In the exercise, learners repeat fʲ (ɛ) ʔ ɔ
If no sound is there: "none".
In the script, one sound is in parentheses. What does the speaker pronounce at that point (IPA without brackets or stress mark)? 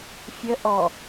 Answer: ə